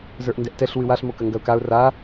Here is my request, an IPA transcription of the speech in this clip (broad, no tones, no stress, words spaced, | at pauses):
zə˞ʔndɛʔtɛɬ wɨwaɬ mokɐŋɡɐʊ̯kaʊ̯ ra